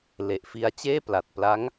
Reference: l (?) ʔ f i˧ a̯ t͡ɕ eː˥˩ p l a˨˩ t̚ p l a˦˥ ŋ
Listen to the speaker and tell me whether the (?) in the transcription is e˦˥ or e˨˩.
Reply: e˨˩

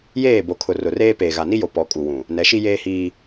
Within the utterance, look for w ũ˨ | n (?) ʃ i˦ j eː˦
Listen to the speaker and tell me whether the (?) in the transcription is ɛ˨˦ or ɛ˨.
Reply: ɛ˨˦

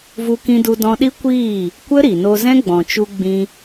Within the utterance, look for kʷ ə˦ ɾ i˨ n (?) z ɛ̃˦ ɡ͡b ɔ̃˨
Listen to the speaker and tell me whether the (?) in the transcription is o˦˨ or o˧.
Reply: o˧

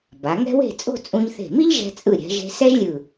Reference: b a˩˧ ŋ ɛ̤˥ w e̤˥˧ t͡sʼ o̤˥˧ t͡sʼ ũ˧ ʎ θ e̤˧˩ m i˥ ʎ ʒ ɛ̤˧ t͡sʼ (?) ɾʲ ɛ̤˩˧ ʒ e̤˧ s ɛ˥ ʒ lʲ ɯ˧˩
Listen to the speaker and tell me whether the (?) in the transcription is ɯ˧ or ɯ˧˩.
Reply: ɯ˧˩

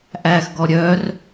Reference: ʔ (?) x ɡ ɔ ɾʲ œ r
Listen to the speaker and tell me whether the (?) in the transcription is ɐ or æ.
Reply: æ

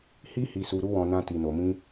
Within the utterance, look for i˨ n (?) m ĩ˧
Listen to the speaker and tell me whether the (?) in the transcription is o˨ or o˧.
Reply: o˨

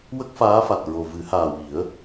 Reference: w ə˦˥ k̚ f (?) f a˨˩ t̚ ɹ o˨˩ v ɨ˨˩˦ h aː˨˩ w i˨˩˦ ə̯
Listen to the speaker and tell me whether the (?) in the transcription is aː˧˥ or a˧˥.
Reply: aː˧˥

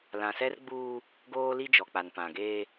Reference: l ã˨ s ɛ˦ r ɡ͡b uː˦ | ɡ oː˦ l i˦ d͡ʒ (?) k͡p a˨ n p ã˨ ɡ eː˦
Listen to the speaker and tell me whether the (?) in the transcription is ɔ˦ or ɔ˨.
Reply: ɔ˨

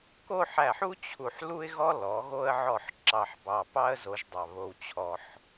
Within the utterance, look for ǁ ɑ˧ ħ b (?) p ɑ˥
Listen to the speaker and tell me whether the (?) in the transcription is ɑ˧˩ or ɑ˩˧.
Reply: ɑ˧˩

